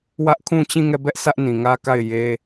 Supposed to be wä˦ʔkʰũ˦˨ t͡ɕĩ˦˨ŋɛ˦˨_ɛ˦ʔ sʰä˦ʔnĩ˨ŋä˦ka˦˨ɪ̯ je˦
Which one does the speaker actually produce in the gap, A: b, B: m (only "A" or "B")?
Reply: A